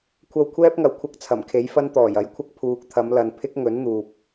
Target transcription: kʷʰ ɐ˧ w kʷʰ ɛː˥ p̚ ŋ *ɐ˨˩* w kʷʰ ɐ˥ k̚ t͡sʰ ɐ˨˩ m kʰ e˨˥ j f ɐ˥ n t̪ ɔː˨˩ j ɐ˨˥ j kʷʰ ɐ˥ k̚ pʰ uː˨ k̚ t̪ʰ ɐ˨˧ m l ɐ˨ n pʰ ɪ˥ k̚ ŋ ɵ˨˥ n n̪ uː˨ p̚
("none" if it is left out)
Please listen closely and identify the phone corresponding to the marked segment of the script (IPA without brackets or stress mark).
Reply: ɐ˨˩